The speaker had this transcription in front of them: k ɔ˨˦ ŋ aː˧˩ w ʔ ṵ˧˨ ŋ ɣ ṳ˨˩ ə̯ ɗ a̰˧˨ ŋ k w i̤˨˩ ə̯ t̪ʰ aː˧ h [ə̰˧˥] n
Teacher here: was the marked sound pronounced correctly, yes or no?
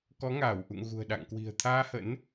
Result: yes